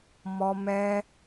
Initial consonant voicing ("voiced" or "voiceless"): voiced